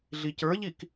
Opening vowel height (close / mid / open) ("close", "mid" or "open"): close